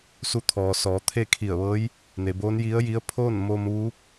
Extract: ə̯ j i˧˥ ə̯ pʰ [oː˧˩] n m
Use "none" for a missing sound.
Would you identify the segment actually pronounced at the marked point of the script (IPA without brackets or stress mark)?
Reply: oː˥˨